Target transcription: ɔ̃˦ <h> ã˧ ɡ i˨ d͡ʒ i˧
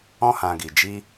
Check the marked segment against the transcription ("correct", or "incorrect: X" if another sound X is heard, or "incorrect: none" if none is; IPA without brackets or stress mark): correct